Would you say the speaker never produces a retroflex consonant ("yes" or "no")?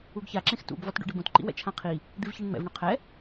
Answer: no